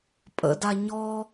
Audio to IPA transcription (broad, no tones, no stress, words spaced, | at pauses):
pʼə̰da ɲɔ